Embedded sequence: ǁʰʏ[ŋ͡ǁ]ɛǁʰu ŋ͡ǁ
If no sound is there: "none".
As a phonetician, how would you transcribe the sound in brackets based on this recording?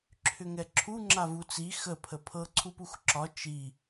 ŋ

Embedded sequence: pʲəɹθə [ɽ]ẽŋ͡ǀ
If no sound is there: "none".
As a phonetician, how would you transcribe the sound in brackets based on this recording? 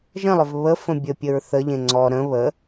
ʎ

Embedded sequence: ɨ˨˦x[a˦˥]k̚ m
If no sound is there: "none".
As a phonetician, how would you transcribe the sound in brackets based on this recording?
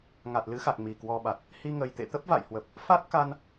a˨˩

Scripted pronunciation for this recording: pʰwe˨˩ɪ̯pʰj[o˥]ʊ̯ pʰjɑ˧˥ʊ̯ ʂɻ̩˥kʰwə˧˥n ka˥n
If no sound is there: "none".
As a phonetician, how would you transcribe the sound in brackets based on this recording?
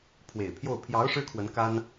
o˥˩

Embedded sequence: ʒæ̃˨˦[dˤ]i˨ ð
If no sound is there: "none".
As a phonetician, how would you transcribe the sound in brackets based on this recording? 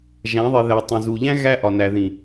ðˤ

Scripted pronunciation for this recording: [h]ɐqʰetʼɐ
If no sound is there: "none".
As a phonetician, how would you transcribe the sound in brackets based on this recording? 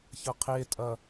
ç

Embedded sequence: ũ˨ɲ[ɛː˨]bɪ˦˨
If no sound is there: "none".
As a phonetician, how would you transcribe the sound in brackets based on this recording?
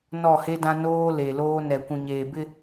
eː˨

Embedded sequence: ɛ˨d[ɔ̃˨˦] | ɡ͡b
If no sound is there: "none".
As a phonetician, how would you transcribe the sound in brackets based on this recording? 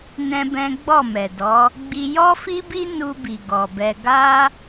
ɔ˨˦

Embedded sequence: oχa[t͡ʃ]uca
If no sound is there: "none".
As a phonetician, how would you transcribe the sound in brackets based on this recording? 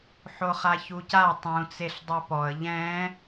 ç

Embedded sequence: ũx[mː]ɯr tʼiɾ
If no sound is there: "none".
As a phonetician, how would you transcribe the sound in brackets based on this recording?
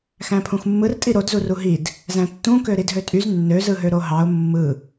mː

